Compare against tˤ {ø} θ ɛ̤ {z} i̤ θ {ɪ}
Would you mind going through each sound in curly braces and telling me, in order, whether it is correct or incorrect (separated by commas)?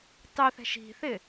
correct, incorrect, correct